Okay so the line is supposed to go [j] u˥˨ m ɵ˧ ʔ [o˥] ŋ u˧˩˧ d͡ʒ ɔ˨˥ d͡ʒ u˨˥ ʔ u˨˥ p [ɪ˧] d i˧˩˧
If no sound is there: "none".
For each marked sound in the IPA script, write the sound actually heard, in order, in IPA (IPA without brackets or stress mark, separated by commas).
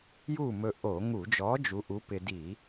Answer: j, o˧˩˧, ɪ˧